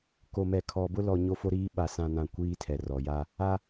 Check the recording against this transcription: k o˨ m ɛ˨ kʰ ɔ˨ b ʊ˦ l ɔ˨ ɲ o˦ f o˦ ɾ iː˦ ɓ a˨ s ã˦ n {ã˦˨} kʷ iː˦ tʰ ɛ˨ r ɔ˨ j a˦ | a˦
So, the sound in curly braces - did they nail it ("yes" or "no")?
yes